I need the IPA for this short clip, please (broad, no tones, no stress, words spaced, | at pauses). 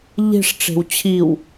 ʎe̤ʂʈ͡ʂe̤w t͡ɕʰiw